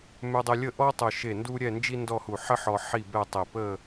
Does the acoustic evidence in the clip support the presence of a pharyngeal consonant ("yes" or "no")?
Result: yes